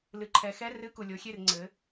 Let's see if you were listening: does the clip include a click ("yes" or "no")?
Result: yes